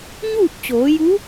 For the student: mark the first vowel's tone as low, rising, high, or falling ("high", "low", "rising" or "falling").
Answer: falling